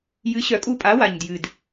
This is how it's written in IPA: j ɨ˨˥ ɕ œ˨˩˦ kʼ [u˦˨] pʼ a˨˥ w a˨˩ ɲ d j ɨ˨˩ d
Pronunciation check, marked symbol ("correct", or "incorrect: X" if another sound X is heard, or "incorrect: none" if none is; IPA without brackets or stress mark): correct